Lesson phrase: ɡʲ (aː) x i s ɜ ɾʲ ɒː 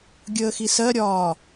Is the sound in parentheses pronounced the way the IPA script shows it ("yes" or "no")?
no